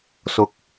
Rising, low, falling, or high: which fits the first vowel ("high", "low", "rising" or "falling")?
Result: rising